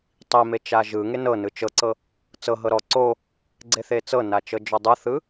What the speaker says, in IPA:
tˤ i m e t͡ʃ a ʒ ɯ ŋ e n ɤ n ɯ t͡ʃ ɤ ǀ ɤ | t͡s ɤ ɦ ɤ ɾ ɔ ǀ o | ɡ͡ǀ e θ e t͡s ɤ n a t͡ʃ ɤ d͡ʒ ɔ dˤ ɯ θ ɯ

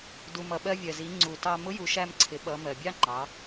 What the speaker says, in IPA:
d u˩ m ʌ˩ ɓ ɜ˧ vʲ ɜ˩ z i˩˧ ŋ͡ǀ u˩ t ɑ˧ m ʊ˧˥ j u˩˧ ʃ æ˧ m ǀʰ ɪ˩˧ ɓ ʌ˩˧ m ɜ˩ bʲ ɑ˥ ŋ͡ǃ ɑ˩˧

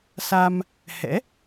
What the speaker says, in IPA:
s a˧ m | h ɛ̰˧˥

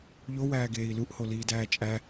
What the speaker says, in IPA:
ʎ o w æː ɡ eː i̯ l u ʔ h o l iː d æː t͡ʃʼ æ

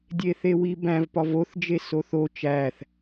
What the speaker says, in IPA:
dʲ e θ e w i b æ̃ v p ɒ v o θ d͡ʒ e s o θ o t͡ʃ æ θ

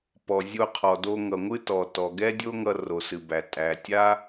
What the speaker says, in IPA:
p ɔ˩ zʲ o˧ qʰ ɔ˩ d o˧ ŋ ʌ˩ ŋʷ ɨ˧ t ɔ˩ t ɔ˩ ɡ ɛ˥ dʲ o˥ ŋ ʌ˧ r o˩ s ɨ˩ b æ˩ tʼ æ˩ tʲ a˥

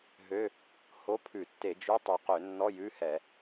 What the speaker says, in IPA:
ɦ ø˧˥˧ | h o˧˥˧ pʰ ʉ˧˩˧ tː e˧˩˧ d͡ʒ y˧˥˧ tˤ y˨˩ q ø˧˩˧ nː ɔ˧˥˧ j ʉ˧˥˧ h ɛ˧˩˧

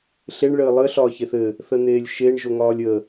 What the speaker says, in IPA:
ɬ e ɳ ɭ ɘː lˠ ɘ ɬ ɒː ç e θ ɘ | θ ə n̪ eː lʲ ʃ e ɳ ʒ o ŋ ɒː lʲ ə

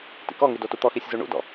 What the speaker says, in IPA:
t ḭ k ɔ ŋ y d o t u t̪ ɔ x i sʲ z u ɳ ṵ d ɔ̰

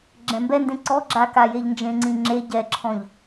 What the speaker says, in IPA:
ɡ͡ǁ ɛ̃ m b ɛ n d ẽ ǀ ɔ ɡ͡ǁ a k a j e ʎ n d͡ʒ ẽ ŋ͡ǀ ĩ ŋ͡ǁ e ɟ ɛ ǁʰ ɔ̃ ʎ

